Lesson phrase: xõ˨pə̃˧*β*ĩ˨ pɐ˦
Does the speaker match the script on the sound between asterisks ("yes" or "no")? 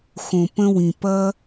no